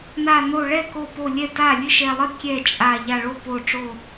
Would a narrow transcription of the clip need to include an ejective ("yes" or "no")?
yes